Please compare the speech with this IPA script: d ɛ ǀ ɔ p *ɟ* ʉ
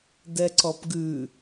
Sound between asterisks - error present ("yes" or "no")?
yes